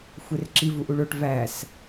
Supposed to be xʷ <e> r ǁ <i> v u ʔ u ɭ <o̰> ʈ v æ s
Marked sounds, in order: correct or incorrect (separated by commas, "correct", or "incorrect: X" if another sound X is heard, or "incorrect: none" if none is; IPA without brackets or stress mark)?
correct, correct, incorrect: o